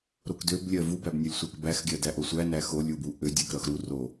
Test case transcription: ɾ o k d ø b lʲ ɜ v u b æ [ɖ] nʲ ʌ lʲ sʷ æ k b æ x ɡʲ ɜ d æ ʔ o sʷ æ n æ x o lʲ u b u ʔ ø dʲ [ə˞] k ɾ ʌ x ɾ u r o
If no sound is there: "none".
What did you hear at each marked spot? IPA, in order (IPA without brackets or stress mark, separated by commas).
b, ɜ